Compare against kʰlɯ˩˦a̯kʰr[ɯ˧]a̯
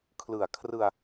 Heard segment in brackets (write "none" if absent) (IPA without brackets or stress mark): ɯ˧